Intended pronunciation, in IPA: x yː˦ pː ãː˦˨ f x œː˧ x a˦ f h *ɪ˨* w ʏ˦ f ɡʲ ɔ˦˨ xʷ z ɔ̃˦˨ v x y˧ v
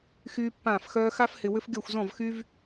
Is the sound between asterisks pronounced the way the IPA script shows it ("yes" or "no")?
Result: yes